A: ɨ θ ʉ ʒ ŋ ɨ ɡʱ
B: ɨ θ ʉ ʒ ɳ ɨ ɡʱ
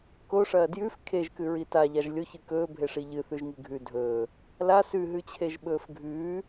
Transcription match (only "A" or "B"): A